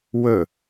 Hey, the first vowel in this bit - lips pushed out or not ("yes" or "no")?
yes